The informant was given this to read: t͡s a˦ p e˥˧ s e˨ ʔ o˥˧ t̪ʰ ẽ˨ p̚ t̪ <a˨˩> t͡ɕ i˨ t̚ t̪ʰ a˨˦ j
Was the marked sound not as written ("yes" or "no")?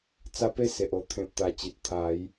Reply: no